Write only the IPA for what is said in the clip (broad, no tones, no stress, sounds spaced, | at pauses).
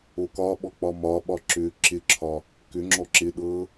o k ɒ ɓ ɔ k͡p ɒ m ɒ ɓ ɒ ǁ ʏ ǁ ɪ ǁʰ ɒ | k ʏ ŋ͡ǁ ɔ ǁ ɪ ɗ ɤ